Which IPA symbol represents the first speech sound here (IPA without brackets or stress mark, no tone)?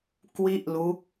k